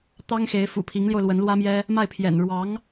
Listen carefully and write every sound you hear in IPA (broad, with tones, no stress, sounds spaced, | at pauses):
t̪ ɑ˥ ŋ x e˧˥ ɪ̯ f ṵ˨˩ pʰ i˧˥ ŋ l j o˧ ʊ̯ l w ə˧˥ n l w ä˥ m j ɛ˥ | m a˥˩ ɪ̯ pʰ j ɛ̰˨˩ n ɻ w ɑ˧˥ ŋ